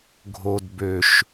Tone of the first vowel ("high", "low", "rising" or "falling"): low